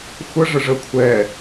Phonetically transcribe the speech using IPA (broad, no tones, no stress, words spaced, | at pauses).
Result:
xʷə ʐəʐə kʷʰɛ